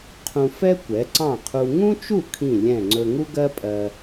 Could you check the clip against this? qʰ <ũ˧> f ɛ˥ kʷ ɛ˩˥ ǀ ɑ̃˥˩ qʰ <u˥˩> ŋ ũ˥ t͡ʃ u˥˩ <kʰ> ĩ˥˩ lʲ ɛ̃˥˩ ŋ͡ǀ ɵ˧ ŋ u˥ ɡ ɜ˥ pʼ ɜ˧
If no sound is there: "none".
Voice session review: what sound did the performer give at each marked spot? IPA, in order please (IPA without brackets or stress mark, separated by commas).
ũ˧, u˧, kʰ